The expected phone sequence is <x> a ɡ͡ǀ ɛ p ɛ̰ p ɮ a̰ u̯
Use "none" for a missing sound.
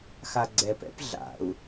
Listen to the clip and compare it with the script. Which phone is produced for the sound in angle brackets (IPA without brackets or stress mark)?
x